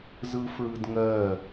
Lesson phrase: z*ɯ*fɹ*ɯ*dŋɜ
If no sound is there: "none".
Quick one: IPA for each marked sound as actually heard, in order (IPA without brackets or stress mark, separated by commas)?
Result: ɯ, ɯ